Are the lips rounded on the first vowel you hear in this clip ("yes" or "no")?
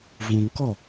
yes